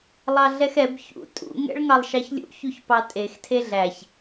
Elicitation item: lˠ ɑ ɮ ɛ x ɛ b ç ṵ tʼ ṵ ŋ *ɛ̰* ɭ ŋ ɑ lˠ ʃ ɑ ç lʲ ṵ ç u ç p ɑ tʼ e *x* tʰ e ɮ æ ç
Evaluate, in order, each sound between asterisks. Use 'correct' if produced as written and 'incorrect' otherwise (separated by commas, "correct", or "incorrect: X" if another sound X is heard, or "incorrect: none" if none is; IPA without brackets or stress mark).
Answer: correct, correct